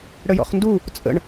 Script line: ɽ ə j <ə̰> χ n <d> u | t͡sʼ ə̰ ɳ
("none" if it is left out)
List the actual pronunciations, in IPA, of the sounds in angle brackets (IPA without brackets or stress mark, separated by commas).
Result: ɔ̰, d